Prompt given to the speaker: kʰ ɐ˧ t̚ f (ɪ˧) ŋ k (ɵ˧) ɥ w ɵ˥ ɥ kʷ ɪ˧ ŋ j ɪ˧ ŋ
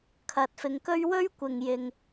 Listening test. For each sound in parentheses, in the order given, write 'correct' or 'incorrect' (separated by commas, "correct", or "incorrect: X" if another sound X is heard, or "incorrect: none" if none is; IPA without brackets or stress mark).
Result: correct, incorrect: ɵ˥